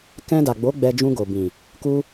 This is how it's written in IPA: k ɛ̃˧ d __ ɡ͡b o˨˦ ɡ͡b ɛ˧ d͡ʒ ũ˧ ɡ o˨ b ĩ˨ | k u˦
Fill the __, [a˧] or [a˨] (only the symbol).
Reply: a˨